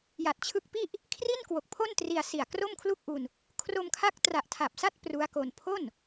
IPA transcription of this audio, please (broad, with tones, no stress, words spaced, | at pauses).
ja˨˩t̚t͡ɕʰɯ˦˥k̚pi˥˩ʔ | kʰri˥˩nkwo˨˩k̚pʰo˥˩ntri˧a̯ si˨˩a̯ kro˥˩mkʰlu˥˩k̚ʔu˧n | kʰro˧mkʰa˦˥k̚ tra˨˩ʔtʰa˨˩p̚sa˥˩t̚ pru˦˥a̯ko˧n pʰo˥˩n